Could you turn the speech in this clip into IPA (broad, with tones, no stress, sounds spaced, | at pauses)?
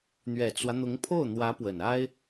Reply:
n̪ ɥ ɛ˨˩ t͡s w ä˦ n̪ ʊ˧˥ ŋ pʰ o˥˩ ʊ̯ n̪ w ä˧˥ p w ə˨˩ n a˥ ɪ̯